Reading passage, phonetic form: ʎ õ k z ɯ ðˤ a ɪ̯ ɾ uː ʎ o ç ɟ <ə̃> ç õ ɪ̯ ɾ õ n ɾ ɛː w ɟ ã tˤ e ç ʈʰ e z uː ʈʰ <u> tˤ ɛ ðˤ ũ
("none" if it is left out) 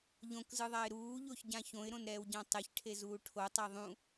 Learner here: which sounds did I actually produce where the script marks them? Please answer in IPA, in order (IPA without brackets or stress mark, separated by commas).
ã, o